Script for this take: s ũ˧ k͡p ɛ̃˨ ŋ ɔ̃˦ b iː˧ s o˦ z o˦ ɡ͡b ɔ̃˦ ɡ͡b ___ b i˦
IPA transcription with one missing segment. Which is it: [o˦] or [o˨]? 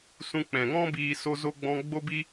o˦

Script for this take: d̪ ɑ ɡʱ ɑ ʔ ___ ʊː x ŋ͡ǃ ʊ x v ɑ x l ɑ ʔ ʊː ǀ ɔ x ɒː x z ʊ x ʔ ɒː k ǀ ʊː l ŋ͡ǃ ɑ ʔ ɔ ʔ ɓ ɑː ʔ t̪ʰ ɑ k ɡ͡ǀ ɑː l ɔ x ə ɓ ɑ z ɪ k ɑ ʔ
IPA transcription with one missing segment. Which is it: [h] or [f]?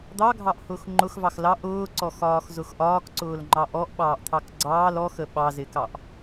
h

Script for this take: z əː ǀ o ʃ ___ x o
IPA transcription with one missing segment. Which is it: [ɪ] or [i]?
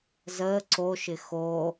ɪ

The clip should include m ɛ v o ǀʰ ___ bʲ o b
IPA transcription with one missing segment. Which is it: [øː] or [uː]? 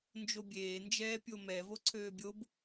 øː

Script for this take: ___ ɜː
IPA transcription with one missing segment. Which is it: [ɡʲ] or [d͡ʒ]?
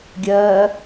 ɡʲ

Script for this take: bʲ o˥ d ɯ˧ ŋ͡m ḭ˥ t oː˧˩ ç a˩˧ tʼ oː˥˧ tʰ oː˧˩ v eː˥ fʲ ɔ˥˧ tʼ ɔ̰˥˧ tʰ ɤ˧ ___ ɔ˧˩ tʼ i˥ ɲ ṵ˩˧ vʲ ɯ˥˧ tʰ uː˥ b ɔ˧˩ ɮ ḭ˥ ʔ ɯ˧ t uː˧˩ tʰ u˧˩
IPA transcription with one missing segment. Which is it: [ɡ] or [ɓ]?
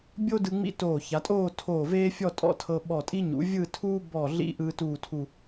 ɓ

